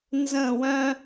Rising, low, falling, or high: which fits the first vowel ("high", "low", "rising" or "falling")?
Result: falling